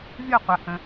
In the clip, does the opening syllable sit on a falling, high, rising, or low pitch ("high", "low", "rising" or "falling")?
falling